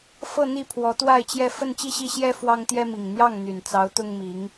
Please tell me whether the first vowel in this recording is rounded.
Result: no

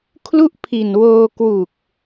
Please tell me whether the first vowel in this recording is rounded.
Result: yes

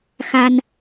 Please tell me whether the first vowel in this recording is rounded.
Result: no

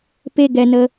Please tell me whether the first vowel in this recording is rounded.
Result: no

